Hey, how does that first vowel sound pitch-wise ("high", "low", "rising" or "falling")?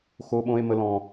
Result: high